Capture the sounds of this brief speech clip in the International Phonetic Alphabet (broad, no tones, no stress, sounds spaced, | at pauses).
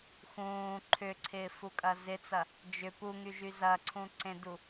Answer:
x ũː ǃʰ ʏ ǀʰ ɪː f u kʼ ɐ z ɪ t͡s ɐ | d͡ʒ ʏ p u ŋ y ʒ y z ɐ ǀʰ ũ ǀ ẽ d u